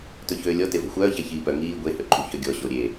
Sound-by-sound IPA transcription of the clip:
tɵçøːlʲɔ tevo̤xʷœːçæ çiːpœ ŋiː ɡʷehøǃʼṳ çœɡʲɔ ɕoɾʲe

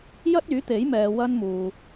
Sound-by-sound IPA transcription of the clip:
jɐ˥t̚yː˨˥t̪e˨˥jmɛː˨ wɐ˥nmuː˨

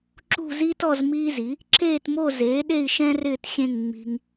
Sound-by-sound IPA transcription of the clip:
ǁṳ˥˧zi˥tɔ˥˧z miː˥zi˩˥ | ǁeː˥˧tmo˥˧ zeː˩˥ɗe˥˧i̯ ʃɛ̃˥rɪː˥˧txʲẽ˥˧ŋ ŋ͡mi̤˧ŋ

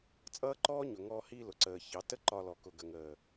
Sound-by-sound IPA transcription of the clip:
t͡sʼʌː˦ǃɔː˦ɲʊ˨ŋɔː˧ hi˧ lʊ˨ǀəː˨çɑ˨˦ tə˦ǃɒ˧lɔ˨ kʊ˨ɡə˨ŋəː˨

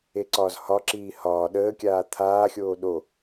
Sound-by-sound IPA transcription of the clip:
eǀɒːzhɒǁiː hɒː ɗəːkʲaː t̪ʰaːxʲoː ɗo

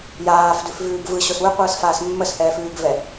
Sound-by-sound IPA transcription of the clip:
jaːfdʉfvʉːɡ vɯɕos wʉqʷɯːsfaːs mːəshɛːfʉːɡvɛ

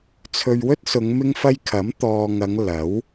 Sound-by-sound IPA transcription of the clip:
t͡sʰɵ˨ɥwɵ˥t̚ sʊ˨˧ŋ mɪ˥ŋfɐ˥j kʰɐ˨˥mt̪ɔː˨ŋɐ˨˧ŋ lɐ˨˥w

